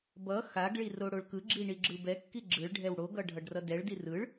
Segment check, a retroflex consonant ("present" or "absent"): present